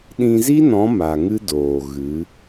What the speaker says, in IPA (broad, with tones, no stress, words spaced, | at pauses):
ɗĩ˧zi˦nɔ̃˨˦ ma˨ ŋɨ˦doː˨ɣɨ˨˦